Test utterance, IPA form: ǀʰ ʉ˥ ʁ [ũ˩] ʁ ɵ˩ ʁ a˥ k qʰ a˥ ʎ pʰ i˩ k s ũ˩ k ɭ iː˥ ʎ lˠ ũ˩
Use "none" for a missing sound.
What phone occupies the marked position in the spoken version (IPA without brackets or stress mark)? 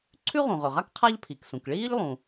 ũ˩